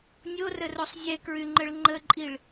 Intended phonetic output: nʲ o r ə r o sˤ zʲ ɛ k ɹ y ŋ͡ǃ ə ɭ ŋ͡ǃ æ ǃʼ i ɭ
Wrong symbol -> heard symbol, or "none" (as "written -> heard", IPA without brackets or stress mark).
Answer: æ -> ə